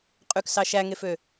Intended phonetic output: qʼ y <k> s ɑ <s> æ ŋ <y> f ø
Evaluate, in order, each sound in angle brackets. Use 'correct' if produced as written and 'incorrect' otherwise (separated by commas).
correct, incorrect, incorrect